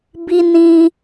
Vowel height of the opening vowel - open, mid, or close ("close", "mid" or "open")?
close